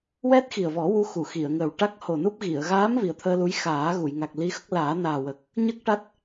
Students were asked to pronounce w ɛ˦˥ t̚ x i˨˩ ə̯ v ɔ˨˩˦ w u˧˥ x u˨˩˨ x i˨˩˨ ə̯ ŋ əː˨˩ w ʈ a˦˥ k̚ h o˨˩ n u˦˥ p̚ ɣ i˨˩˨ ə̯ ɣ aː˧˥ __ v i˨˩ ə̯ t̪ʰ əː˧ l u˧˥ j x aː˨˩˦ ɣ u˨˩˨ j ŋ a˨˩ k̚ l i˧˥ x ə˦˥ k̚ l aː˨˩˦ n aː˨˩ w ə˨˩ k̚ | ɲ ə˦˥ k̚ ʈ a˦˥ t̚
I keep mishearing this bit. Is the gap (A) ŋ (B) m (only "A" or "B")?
B